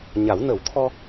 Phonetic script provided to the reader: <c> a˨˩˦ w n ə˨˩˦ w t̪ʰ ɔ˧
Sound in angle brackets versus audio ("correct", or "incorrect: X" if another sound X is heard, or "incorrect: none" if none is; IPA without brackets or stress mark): incorrect: ɲ